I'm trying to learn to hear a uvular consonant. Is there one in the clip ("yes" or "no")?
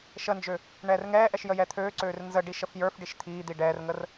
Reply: no